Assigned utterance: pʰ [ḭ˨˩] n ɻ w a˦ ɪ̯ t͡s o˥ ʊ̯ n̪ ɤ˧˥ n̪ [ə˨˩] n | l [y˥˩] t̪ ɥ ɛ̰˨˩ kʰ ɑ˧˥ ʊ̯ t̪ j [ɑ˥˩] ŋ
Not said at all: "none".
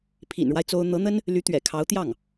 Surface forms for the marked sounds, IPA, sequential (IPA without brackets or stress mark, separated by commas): ḭ˨˩, ə˥, y˧˥, ɑ˥˩